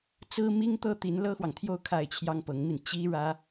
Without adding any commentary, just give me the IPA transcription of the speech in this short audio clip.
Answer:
t͡s ɹ̩˥ m i˥ ŋ t̪ ɤ˥ t̪ i˧˥ n l ɤ˥ x w ɑ˨ ŋ t̪ʰ j o˥˧ ʊ̯ kʰ a˥˩ ɪ̯ t͡ɕʰ j ɑ˥ ŋ p ɤ˧˥ ŋ m i˧ n t͡ɕ i˥ ɻ ä˥

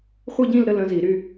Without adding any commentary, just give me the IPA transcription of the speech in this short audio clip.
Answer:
χʷ i˥˧ ɟ ĩ˥˧ l ɾ ə˥˧ l ə̃˧˥ z i˨˩˦ ɾ y˥˧

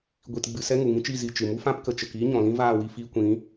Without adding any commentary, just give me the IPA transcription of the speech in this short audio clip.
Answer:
ɡʷ i˧ t ɡ͡b ɨ˧ s ɛ˦ ŋ u˨ ŋ ĩ˦ t͡ʃ i˦˨ z i˧ t͡ʃ ɨ˨ m u˦ f ã˦ p k ə˨ t͡ʃ ə˨ k iː˦ ɲ ɔ̃˨ l ĩ˦ v aː˦˨ w i˧ f iː˧ kʷ ĩ˨˦

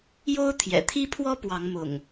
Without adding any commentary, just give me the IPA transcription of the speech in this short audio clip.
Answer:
j o˦ ʊ̯ t̪ʰ j ɛ̰˨˩ t̪ʰ i˦ pʰ w ɔ˦ p w ɑ˨˦ ŋ m ʊ̰˨˩ ŋ

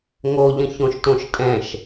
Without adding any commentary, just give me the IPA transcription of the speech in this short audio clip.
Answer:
ŋ o ʎ ə̃ ç õ ʃ t õ ʃ tʼ ɛ̃ ʃ

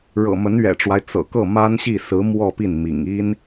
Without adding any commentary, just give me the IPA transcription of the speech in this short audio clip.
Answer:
ɻ ɤ̰˨˩ m ə˧˥ n ɥ ɛ̰˨˩ ʈ͡ʂ w a˦ ɪ̯ t͡s ɤ̰˨˩ k ɤ˥˩ m a˥ n ɕ i˥˩ s ɹ̩˧˥ m w ɔ˥˧ p i˥˩ n m ḭ˨˩ ŋ i˥ n

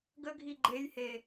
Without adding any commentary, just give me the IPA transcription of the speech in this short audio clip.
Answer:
ɡ ə ɡʱ i ɡ͡ǃ e j h e

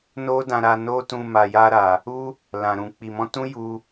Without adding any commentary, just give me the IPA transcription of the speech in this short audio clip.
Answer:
n o˦ d ã˧ ɾ a˧ n o˦ t ũ˧ m a˨ j a˧ ɾ a˨ | u˦ | l ã˨ ɾ ũ˨ k͡p i˨ m ɔ̃˧ t ũ˦ j u˧

